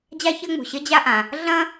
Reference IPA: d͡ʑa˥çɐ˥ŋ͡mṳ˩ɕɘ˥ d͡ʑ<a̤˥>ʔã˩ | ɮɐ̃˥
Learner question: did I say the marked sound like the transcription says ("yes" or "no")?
no